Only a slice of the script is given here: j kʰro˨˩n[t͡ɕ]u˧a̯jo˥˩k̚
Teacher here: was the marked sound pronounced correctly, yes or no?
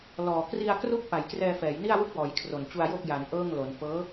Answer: yes